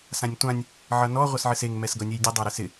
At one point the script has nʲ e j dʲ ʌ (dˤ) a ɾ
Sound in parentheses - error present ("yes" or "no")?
no